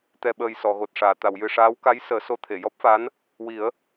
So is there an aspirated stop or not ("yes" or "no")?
yes